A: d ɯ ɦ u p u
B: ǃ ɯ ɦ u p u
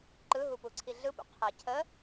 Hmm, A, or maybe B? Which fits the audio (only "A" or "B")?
B